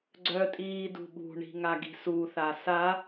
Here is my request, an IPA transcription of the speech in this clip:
ɡ͡ǀœtʼiː dṳɓṳɳi̤ ŋaɡi̤suθa sa

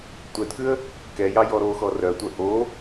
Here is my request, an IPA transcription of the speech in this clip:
tʷɛdkʉə̯ | kɛjɑ jɔɾoxɔ rœtʷœ ʔo

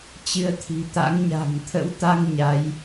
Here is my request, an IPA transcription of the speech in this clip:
t͡ɕɨ˨˦ə̯t̪ʰi̤˨˩t̪a̰˧˥ŋ ɲa̤˨˩ŋt̪ʰə̰˧˥wt̪a˧ŋ ɲa˨˦j

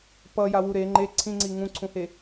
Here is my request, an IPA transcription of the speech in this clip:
pʌ jawuɾe ŋ͡ǃe ǀʰĩŋ͡ǀi ŋũǀʰũhe

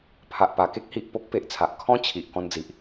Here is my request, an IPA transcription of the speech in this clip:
pʰa˨ʔpa˨˩ke˦k̚ hi˨ʔpo˦k̚pe˨ʔt͡sʰa˨ʔ kʰɔ̃˦ t͡ɕʰi˨ʔ kɔ̃˧nd͡zi˨ʔ

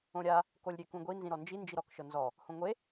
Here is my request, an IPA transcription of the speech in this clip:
õɾʲa | kolʲɾʲekũɡʷi nzĩɾɔnd͡ʒi nd͡ʒiɾɔk ʃɤnzɔ | hõŋʷe

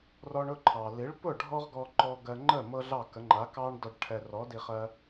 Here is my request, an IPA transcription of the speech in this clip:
rɔ˧ɳʊ˥˩ǃʰɑ˩ li˩˥ɭpʊ˥˩ ɖʱɔ˥ʁɡɔ˧ ǃɔ˧ɡɜ˧ŋ͡ǃə˥˩ mɤ˥ɮɑ˥˩kə˩˥ ŋ͡ǃa˩˥kɑ˥ɳdɔ˧ɖ ʈʰɛ˧ rɔ˩˥ di˧χɜ˧

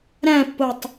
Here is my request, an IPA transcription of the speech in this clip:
ɾæ̃pːotˤ

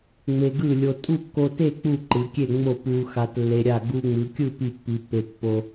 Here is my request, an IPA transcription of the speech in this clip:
ŋ͡me˧ɡɯ˥˨lʲo˧ tʼu˥˨kːo˧te˥˨ k͡pu˥˨ǃɯ˩˧kʲe˥˨ ŋ͡mo˥˨pu˧xa˧t lːe˧ɾʲa˥˨ ɡu˧ŋ͡mɯ˩˧kʲɯ˥˨ pi˥˨pːi˧pːe˧ pːo˧

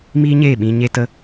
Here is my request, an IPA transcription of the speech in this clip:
miː˦ɲeː˦˨ ɓĩ˧ ɲe˧tə˧

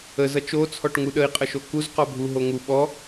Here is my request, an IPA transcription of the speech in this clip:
əz ʌt͡ʃo t͡sʰɔʈŋuɗəi̯ qʼəʃokuz qɔbʱu ɦoŋu ɓɔ

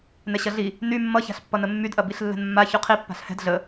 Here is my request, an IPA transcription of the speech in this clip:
nɛɕɐɮi | ny mːʌça̤ɬpːʌnə mːydʔɐ biɬlːɛ̤nmːa çyqʰi pːa̤ɬhɛ̤d ɮə

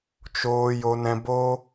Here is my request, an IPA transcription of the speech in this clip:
t͡ʃoː˧ jo˧nɛ̃˧bo˦

